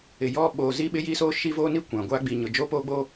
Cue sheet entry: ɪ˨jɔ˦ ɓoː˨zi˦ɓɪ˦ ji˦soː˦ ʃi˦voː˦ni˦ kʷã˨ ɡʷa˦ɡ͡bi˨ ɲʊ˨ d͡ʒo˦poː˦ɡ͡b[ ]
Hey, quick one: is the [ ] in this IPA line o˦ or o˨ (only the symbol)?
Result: o˦